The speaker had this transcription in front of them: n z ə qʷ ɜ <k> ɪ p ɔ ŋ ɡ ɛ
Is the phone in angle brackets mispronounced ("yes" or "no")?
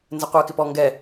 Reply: no